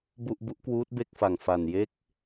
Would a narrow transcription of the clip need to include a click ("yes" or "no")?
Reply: no